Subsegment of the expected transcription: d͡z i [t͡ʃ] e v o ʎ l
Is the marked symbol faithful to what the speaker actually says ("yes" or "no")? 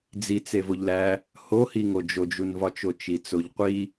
no